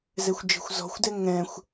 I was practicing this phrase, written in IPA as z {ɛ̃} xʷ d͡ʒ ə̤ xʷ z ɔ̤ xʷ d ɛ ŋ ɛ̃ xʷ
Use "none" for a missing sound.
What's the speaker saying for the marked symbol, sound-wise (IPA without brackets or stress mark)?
ɛ